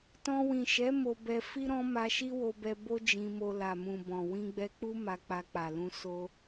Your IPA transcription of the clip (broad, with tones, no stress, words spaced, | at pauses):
tɔ̃˧ wĩ˨ʃɛ˨˦ mo˧bɛ˧ fi˦ ɾɔ̃˦ma˧ʃi˦ wo˧bɛ˧ bo˦ d͡ʒĩ˧mo˧ la˨mũ˨bɔ̃˨ wĩ˧ɡ͡bɛ˧k͡pu˦ ma˧k͡pa˧k͡pa˨lũ˧ so˧